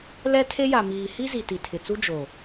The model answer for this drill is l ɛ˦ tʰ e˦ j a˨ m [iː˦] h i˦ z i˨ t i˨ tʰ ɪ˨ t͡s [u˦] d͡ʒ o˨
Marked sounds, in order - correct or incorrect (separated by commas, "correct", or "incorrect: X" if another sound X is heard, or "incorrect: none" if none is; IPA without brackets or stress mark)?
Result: incorrect: iː˨, correct